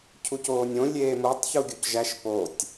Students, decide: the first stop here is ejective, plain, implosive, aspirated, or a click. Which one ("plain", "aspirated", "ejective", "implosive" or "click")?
aspirated